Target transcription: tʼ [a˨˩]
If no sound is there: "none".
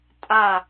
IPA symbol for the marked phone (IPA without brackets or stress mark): a˨˩